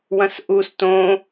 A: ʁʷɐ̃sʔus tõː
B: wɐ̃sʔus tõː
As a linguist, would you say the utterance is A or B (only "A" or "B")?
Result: B